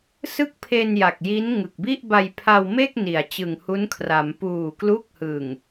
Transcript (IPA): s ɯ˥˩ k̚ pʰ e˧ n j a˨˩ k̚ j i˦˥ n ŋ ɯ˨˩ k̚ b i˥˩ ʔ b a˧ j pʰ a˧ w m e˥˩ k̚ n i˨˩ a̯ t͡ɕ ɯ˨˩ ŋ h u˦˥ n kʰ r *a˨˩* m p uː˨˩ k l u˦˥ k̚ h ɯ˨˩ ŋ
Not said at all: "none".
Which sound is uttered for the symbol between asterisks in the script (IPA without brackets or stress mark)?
a˩˦